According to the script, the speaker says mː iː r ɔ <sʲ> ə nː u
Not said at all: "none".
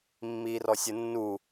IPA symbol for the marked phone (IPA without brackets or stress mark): sʲ